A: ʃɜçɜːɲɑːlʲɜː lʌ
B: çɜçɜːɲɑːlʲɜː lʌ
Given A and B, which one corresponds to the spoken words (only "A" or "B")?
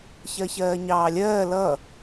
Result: B